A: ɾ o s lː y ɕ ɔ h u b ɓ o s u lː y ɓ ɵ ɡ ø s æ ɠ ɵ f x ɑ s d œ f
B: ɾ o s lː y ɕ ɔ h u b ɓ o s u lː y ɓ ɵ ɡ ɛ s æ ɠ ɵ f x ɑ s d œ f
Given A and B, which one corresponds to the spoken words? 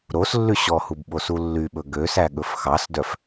A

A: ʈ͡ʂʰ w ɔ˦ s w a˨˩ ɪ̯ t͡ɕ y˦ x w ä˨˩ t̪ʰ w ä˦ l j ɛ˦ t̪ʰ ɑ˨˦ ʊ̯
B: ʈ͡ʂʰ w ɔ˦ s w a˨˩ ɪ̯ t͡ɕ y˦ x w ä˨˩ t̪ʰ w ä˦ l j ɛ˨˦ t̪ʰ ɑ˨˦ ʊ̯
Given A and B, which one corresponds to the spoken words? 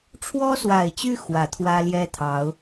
A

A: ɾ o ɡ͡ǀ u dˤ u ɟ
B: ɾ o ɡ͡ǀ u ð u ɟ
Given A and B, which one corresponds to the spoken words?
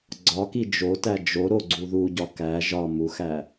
B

